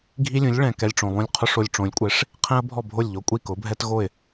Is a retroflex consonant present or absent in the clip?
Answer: present